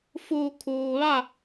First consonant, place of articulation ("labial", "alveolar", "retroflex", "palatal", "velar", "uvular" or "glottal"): labial